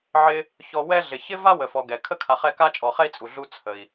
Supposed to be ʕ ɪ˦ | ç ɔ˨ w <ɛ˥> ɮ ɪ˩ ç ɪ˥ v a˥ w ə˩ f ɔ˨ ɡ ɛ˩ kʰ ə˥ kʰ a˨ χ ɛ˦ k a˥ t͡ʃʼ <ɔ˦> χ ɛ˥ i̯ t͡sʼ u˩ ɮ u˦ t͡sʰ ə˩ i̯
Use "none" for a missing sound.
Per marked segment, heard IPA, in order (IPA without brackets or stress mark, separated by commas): ɛ˦, ɔ˨